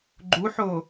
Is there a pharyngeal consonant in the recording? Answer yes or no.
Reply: yes